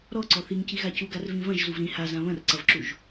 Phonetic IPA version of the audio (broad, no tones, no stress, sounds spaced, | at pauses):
ɾ ɔ ǀ ɔ θ i ŋ c i ɣ a c u ɡ a r v ĩ v ɐ̃ ʒ z u v ɾ ĩ h a z ã β ɐ̃ r ǀ ɐ v ǁ u ʒ